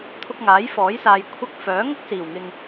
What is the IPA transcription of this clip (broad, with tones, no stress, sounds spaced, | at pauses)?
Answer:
t̪ʰ ʊ˧ k̚ ŋ aː˨˥ j f ɔː˨˥ j s aː˨ j kʷʰ ɐ˧ k̚ f œː˨˥ ŋ ʊ˥ k̚ s iː˨˩ w ŋ ɪ˨ ŋ